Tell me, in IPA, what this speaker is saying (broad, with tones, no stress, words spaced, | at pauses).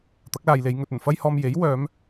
t̪ɐ˨˥k̚laː˨jle˨˧j ŋɵ˨t̚ ɵ˨˩nfɐ˥jhɔː˧m je˨˥j wœː˨˧m